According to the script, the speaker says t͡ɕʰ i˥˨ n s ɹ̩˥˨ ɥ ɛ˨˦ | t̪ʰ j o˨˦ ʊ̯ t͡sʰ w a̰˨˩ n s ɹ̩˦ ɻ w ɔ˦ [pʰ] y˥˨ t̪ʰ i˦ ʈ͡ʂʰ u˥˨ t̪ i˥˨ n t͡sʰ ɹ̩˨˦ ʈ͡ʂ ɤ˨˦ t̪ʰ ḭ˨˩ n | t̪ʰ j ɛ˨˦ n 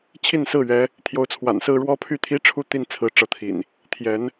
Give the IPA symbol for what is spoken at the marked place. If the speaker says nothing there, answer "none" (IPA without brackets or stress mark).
pʰ